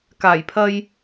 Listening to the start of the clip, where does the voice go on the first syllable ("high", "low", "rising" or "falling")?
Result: low